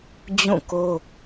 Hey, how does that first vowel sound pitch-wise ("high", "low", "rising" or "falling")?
falling